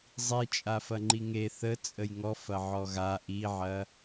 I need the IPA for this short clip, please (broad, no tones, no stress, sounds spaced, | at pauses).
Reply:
zˤ i t͡ʃʼ a f ɐ ŋ͡ǃ i ŋ e θ ə t͡sʼ ə j ŋ ɔ f ɐ ʕ ɔ ɣ a ʔ i ʕ ɐ